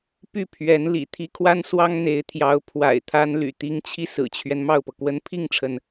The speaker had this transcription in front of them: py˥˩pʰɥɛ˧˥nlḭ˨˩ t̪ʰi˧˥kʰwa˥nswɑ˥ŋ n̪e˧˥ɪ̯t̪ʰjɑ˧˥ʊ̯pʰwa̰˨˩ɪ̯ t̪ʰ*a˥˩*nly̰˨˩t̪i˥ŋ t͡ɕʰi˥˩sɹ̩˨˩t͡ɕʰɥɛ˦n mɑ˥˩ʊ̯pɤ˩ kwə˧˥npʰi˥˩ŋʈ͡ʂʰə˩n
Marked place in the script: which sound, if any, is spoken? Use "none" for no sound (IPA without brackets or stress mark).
a˥